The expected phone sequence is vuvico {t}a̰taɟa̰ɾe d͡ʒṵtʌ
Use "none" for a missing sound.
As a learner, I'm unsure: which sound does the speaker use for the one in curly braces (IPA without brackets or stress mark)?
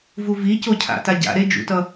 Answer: cʰ